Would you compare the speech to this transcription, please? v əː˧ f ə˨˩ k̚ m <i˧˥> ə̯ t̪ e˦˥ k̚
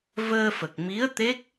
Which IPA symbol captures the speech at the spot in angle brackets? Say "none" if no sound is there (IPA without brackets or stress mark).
i˧˥